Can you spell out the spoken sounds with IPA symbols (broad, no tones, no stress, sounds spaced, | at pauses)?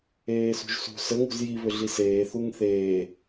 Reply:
eː s ṳ ʒ s ṳ s ə ŋ ṳ z j i β ʏ ɮ i s eː θ u ŋ θ eː